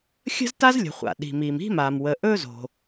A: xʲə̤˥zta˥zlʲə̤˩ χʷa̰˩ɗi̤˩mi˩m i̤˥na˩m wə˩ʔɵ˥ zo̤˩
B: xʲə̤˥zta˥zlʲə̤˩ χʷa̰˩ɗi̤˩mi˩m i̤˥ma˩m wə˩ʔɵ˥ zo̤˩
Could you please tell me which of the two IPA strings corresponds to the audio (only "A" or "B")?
B